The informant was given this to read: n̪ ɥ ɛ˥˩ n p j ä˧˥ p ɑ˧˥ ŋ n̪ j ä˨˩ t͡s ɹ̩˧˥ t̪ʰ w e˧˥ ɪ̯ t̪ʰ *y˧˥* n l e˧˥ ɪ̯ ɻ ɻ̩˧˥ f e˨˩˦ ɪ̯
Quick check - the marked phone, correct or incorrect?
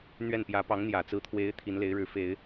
incorrect